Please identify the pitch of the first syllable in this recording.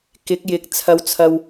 rising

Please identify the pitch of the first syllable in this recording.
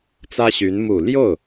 high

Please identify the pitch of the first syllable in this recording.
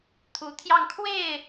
rising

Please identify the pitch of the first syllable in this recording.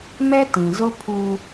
high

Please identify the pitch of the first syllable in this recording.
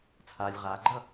low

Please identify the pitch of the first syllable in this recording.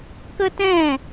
high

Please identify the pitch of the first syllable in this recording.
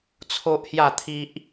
high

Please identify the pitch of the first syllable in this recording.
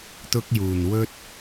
high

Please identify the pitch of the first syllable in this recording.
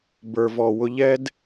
low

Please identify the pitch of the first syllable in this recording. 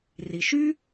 low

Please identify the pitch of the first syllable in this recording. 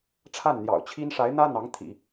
falling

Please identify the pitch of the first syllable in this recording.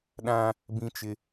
high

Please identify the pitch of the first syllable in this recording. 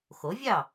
rising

